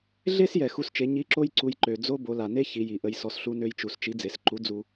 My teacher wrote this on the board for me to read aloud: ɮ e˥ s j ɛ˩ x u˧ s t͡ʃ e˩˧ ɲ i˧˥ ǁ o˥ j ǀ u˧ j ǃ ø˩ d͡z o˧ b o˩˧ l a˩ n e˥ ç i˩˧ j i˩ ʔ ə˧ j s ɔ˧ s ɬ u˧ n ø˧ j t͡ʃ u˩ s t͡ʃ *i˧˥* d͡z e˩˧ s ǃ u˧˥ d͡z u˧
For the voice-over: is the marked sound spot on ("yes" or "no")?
yes